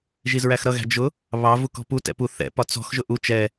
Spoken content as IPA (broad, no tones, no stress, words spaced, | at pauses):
ʒizɹæxɾʌɣæ̤ d͡ʒʊ | βɑvu kɔ̤putɛ̰ pu θɛ̰pɒ t͡sɔ̤xʒʊ ʔu t͡ʃɛ